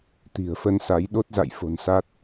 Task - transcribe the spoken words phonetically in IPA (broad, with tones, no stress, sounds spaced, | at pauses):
t̪ i̤˨˩ ə̯ f ə˧ n s a˨˦ j ɗ o˦˥ t̚ z a̰˧˨ j f o̤˨˩ n s a˦˥ t̚